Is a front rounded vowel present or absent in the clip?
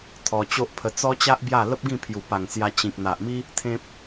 absent